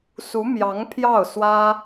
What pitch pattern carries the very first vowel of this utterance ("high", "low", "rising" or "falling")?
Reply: rising